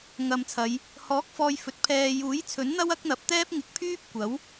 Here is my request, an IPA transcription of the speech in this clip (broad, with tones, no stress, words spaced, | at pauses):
ŋɐ˨m t͡sʰɐ˨˧j | hɔː˨˥k̚fɔː˨j fɵ˨t̚pʰɛː˧ juː˨˥jt͡sʰɵ˨˥nn̪ɐ˥w ɐ˥k̚n̪ɐ˨p̚t̪ɛː˥p̚ ŋɪ˨˥k̚pʰyː˥p̚ kʷɐ˨˥w